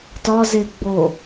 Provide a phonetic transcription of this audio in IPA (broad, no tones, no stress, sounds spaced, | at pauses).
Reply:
t ɒ z e ɡ͡b o